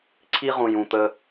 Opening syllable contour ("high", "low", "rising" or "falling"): high